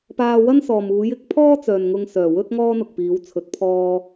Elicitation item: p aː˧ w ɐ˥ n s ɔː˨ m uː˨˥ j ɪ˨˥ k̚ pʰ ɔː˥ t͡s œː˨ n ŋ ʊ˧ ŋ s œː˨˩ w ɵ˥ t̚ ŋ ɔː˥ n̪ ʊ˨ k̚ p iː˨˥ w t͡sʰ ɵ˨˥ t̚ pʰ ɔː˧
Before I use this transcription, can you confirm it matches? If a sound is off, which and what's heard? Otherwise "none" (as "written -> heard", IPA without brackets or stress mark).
none